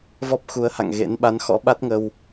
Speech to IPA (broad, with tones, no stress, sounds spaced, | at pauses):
v ɔ˦˥ p̚ x u˨˦ ə̯ h a̰˧˨ ŋ ɣ ḛ˧˥ n ɓ a˨˦ n x ɔ̰˧˥ ɓ a˦˥ t̚ ŋ ə˧ w